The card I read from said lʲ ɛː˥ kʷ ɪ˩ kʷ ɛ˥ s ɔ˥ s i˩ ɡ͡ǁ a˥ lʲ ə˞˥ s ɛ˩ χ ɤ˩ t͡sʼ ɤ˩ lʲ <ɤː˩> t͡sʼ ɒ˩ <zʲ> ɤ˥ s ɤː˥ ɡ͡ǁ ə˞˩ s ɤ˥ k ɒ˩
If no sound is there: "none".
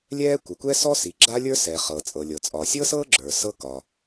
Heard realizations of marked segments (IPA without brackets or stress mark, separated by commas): ɤ˩, sʲ